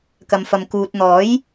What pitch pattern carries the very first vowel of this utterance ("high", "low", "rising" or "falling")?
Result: low